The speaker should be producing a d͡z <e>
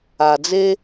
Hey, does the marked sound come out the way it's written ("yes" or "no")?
yes